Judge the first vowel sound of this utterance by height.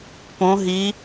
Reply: mid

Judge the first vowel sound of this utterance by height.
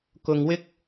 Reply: high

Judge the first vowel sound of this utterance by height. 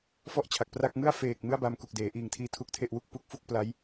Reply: mid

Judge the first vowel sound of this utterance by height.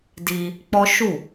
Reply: high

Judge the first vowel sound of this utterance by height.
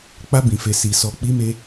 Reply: low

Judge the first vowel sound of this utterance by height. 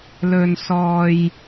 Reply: mid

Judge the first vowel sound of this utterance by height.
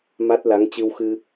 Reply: low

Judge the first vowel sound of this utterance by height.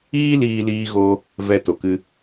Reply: high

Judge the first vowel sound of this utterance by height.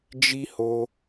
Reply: high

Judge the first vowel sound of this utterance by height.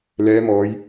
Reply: mid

